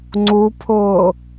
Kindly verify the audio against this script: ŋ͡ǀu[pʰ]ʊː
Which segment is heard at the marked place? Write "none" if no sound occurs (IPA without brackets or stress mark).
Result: pʰ